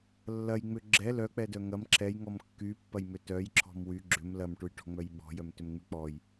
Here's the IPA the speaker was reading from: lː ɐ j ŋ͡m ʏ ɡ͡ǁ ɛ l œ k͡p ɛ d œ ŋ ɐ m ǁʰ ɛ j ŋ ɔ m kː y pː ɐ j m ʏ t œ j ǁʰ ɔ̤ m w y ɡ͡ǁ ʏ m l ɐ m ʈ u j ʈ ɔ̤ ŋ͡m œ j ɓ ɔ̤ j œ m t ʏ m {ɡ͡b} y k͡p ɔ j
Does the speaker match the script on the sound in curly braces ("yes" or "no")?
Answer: no